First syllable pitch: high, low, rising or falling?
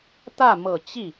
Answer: falling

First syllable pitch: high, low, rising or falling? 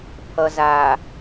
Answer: low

